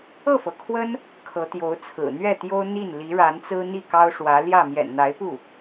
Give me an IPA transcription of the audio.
ɤ˥˩ f ɤ˩ kʰ w ə˥ n | kʰ ɤ˧˥ t̪ j o˧˥ ʊ̯ t͡sʰ ɹ̩˨˩ n̪ ɥ ɛ˥˩ t̪ j o˥ ʊ̯ n̪ i˥˩ n l i˧˥ ɻ a˧˥ n t͡s ɹ̩˥ n̪ i˥˩ k ɑ˥ ʊ̯ ʂ w ä˧˥ l j ä˥˩ m j ɛ̰˨˩ n n̪ a˧˥ ɪ̯ p u˥˩

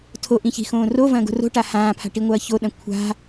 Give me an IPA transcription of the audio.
tʰ o ʔ ĩ ç i̤ x õː r o v ɐ̃ː ɡ o̤ r o̤ ʈ a h ãː pʰ a̤ ʈ i ŋʷ ɐː ç o ɗ ɐ̃ kʷʰ a̤

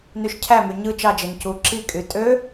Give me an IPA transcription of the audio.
n y ʃ cʰ æ m y ɲ ɯ t͡ʃ ɑ d͡ʒ e n c u ǁ i kʼ y tʼ ø

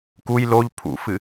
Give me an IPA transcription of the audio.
k u j l o ʎ pʰ ṵ f ɨ

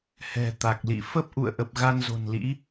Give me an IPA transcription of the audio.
h ɛ̤˨˩ t̪ a˨˩ k̚ l ḭ˧˨ f ə˦˥ p̚ ʔ ṵ˧˨ ə̯ ʔ ə˨˩ p̚ ɣ a˧ n z o̤˨˩ n l ḭ˧˥

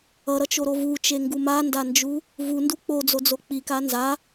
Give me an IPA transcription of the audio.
ʌ ɾ ʌ t͡ʃ o ɾ o v u t͡ʃ e ŋ ɡ u m a n d a n d͡ʒ u | v u n d u k͡p o d͡z o d͡z o k͡p i k a n z a

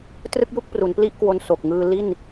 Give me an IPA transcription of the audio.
t r ɯ˥˩ k̚ j u˥˩ k̚ p r u˩˦ n p l i˥˩ ʔ k w o˧ n s o˨˩ k̚ ŋ ɯː˧ l i˥˩ n

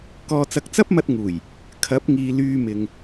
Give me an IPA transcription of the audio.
k ɔː˨ t͡s ɐ˨ k̚ t͡s ɐ˥ p̚ m ɐ˧ t̚ ŋ uː˨˩ j | kʰ ɐ˨˥ p̚ ŋ iː˨ l yː˧ m ɪ˨ ŋ

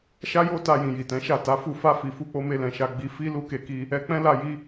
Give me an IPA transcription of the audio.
ʃ a˦ j o˦ t a˧ j ĩ˨ j i˨ t ɛ̃˨˦ ʃ a˦˨ t a˨˦ f u˦˨ f a˧ f i˨ f u˧ k͡p o˧ m e˧ l ɛ̃˨ ʃ a˧ ɡ͡b i˧ f i˦ l u˦ k e˧ k i˧ | ɛ˧ k͡p ɛ̃˦ l a˧ j i˧

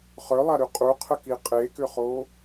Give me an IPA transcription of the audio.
χ œ lˠ a ɾ y qʼ u qʰ ə k i qʼ e k ʏ χ o

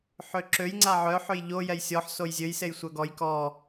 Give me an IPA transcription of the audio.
ħ ø ǁ ø j ŋ͡ǀ a ʕ œ ħ ø j ʎ o j ɛ j sʲ ɔ ħ s o j zʲ ø j s e j sʷ œ ɡ ɔ j k ɔ

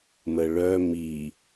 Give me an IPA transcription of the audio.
m ə ɭ œ m i

